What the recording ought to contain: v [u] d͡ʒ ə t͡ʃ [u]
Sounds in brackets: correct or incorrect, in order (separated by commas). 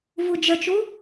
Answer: correct, correct